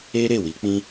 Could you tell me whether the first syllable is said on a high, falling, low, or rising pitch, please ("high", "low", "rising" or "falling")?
high